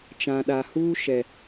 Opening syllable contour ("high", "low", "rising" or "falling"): low